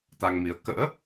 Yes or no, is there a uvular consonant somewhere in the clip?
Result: no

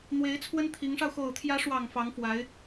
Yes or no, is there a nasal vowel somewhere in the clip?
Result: no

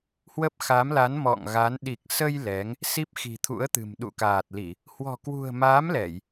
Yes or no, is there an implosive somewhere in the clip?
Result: yes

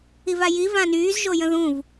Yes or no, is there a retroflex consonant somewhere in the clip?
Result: no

